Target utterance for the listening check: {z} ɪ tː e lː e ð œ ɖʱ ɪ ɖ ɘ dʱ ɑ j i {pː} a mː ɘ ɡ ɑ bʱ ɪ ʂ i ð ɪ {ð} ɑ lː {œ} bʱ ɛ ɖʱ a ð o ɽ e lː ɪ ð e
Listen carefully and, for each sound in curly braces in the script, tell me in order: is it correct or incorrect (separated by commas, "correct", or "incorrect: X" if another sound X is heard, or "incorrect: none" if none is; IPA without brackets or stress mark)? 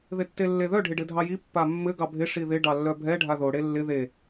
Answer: incorrect: ð, correct, incorrect: ɖ, correct